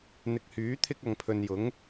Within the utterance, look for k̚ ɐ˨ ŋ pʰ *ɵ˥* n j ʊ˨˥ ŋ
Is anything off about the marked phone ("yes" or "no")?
yes